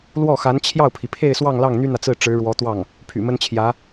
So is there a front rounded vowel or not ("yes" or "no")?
yes